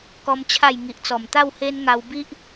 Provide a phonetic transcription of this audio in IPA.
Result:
k ɔ˦ m t͡ɕʰ a˥˧ j ŋ i˨ ʔ t͡s ɔ˨˩ m t̪ a˥˧ w h e˦ n ŋ a˧ w b i˦ ʔ

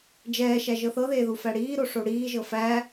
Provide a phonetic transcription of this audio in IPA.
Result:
d͡ʒ ɛː ʃ æ ʒ ɤ θ ɤ ð eː ð u f æ ɽ iː ɾ o ʂ o ɽ iː ʒ ɤ f æ

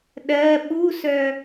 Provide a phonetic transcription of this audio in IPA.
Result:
ɗ ɜ ɓ u s œ

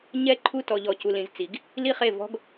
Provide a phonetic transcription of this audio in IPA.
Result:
ɲ ɛ˦˨ ǃʰ u˦ t ɔ˨ ʎ ɔ˨ c u˨ l ĩ˨ z t͡s i˨˦ ɡ | l i˦ χ e˦˨ v ɔ̤˦ ɡ

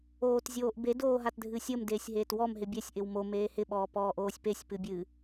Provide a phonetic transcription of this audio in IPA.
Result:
oː t zʲ oː ʔ b e d oː ɦ a t dʱ ɨ sʲ ə m d eː sʲ ɦ eː t w ɔ m ɦ ɪ bʲ ɛ sʲ ʔ ɪ w m o m eː h ɪ ɓ ɔː p ɔː ʔ oː sʲ p e sʲ p ɨ bʲ ɨ

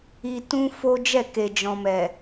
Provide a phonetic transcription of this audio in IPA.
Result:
i˦ t ũ˦ f o˦ d͡ʒ ɛ˦˨ k e˨ d͡ʒ ɔ̃˨ m ɛ˨

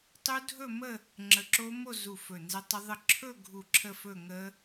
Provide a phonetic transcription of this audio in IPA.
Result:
tˤ u˦˥ dʱ ɵ˥˧ m ə˥˧ | ŋ͡ǁ ə˧˩ ǁ o˦˥ m o˥˧ z u˧˩ f ɵ˧˩ n z ə˦˥ tˤ ə˦˥ ðˤ ə˥˧ ǁʰ ɵ˥˧ ɡʱ u˧˩ ǁʰ ə˥˧ f ɵ˥˧ ŋ ə˦˥

